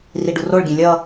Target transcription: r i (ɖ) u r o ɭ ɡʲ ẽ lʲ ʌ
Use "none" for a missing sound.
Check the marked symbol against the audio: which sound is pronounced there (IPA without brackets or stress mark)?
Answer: ɖ